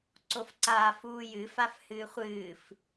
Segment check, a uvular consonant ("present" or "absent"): present